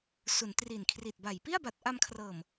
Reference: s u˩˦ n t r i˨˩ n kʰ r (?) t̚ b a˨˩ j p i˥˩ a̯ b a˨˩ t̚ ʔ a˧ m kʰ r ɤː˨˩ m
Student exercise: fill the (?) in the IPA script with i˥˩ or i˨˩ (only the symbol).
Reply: i˨˩